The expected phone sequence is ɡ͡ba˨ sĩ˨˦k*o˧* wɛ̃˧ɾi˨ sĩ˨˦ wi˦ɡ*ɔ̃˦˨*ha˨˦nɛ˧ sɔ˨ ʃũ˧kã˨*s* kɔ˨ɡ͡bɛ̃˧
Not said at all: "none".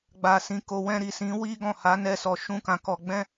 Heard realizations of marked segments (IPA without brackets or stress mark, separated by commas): o˧, ɔ̃˦˨, none